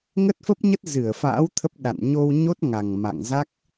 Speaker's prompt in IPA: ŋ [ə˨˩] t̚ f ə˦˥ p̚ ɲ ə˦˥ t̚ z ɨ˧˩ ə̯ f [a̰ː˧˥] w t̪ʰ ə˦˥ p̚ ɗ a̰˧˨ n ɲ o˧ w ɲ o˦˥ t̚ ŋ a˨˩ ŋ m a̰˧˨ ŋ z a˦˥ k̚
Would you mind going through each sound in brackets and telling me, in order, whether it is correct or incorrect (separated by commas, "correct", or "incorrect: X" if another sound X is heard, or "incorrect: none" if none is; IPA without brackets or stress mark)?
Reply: incorrect: ə˦˥, correct